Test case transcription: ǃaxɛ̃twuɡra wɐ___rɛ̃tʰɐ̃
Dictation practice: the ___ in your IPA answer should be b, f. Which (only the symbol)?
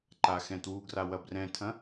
b